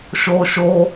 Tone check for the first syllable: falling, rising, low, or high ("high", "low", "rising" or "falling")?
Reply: high